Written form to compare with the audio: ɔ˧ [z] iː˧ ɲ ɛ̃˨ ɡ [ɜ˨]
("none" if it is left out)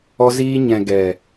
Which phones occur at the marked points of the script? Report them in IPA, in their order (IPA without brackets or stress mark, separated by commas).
z, ɛ˨